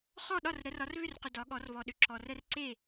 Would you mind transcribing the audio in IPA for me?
χ ɔ˥˨ ɗ ɒ˥˨ r ɾ ə˨˦ r ɒ˨˦ r β ʏ˥˨ r q ʏ˨ d ɒ˨˦ ɠ ɔ˨˦ r β ɔ˨ ɗ ʏ˨ ǁ ɔ˨ r ə˦ r ǀ e˥˨

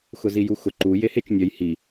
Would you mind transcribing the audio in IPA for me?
x ʊ z i j u x ʊ ǃ u j e h e t͡ʃ nʲ œ j h i

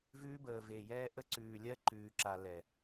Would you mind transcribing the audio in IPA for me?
v ʉː˧ b əː˨ v e˨ j ɛː˧ ʔ ə˧ ǀ ʉː˨ lʲ ɜ˧ ǃ ʉː˨ ǁ a˨ l ɛ˨

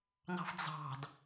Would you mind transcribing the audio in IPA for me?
n ɑ̤ f d͡z ɑ̤ d

